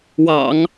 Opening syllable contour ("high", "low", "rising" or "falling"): low